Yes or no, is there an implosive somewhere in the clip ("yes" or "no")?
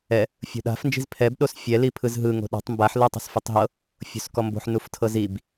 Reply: yes